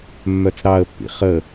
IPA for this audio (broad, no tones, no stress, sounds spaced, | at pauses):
mː œ t͡s ɾ ɑ ə̯ pː ḭ χ ə